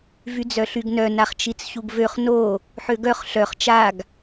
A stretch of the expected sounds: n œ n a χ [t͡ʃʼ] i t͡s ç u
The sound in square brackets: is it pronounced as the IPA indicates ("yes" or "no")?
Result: no